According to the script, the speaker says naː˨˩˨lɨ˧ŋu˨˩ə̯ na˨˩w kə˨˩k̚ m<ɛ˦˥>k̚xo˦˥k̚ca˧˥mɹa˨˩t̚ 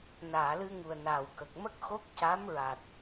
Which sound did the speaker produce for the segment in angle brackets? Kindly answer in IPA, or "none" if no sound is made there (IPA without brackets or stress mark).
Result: ə˦˥